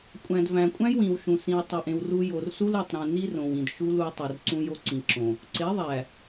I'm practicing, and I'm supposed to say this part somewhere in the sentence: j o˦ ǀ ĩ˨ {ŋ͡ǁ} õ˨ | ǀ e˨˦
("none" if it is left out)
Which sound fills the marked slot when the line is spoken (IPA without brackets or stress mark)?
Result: ǁ